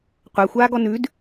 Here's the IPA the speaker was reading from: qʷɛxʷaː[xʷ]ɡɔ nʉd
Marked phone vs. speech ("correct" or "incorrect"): incorrect